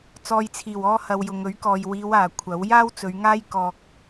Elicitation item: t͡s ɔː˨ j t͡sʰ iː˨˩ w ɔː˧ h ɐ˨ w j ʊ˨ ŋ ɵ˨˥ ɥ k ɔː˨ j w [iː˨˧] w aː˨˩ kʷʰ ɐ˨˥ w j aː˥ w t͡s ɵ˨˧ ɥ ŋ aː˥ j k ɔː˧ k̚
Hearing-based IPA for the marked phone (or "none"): iː˨˧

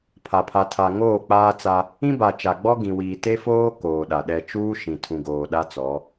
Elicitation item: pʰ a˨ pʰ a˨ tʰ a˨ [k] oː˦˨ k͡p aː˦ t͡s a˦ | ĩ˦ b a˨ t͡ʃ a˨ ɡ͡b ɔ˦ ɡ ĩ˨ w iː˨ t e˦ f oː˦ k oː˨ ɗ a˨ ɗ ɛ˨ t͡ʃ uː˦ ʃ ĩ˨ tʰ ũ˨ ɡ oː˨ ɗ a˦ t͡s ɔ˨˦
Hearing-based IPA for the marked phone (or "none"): ŋ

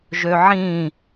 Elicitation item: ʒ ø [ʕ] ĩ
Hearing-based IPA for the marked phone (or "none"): ʕ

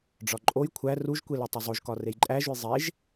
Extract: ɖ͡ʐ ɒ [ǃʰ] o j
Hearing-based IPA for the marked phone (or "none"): ǃʼ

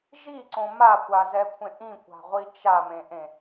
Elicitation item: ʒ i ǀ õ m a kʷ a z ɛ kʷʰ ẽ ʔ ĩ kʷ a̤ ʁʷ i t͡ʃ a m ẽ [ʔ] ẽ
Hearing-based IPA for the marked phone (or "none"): ʔ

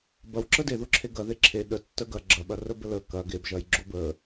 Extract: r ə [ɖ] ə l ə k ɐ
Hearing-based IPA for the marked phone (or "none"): b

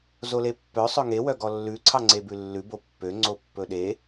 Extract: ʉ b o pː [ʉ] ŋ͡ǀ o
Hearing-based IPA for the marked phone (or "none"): ø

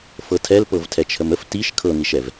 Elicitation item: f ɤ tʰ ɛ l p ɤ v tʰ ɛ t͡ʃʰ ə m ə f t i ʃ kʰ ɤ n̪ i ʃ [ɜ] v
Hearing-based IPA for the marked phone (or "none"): ɛ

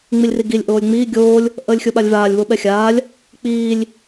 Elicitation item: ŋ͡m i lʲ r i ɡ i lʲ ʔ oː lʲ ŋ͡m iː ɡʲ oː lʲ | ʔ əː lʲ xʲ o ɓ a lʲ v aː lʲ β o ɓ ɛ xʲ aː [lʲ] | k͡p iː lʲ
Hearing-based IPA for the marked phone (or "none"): lʲ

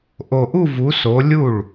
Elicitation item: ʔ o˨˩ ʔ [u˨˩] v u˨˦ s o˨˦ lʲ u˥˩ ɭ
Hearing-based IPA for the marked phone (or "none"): u˥˧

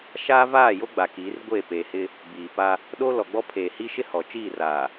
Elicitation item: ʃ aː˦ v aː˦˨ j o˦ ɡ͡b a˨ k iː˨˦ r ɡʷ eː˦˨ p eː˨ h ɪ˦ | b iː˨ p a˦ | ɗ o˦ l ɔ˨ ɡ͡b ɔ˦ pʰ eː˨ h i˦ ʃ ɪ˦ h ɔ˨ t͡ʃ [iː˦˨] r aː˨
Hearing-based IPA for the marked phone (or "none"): iː˦˨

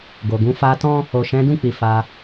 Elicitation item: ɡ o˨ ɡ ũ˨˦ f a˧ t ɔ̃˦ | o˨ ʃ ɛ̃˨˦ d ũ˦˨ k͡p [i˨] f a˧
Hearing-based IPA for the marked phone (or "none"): i˨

